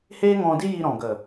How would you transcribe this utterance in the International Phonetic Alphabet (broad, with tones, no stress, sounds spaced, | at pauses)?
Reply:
h eː˦ ŋ ɔ̃˧ d i˦ j i˧ ɾ ɔ̃˨ ɡ ə˨